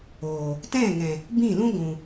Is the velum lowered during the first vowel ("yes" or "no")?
no